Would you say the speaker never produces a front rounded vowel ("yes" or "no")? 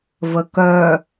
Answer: no